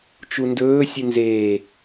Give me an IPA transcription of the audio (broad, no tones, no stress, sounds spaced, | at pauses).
t͡ʃ u n d ɵː sʲ ɨ n z eː